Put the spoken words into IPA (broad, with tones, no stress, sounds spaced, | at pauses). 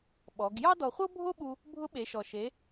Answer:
ɓ ɔ˩˧ ɡ j ɑ˥ d ɔ˧ χʷ ɤ˥ bʱ o˥ ɓ u˧ | bʱ ʊ˧˥ ɓ e˩˧ ʃ ɔ˩ ʃ e˩˧